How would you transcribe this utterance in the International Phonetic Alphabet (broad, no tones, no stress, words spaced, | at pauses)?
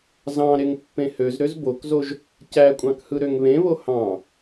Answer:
zɑ̃ ɾeŋpːẽhøz ɾøzbokzoʒ | cækʷʼɑ̃khɯ ɾøŋβẽβo hɑ̃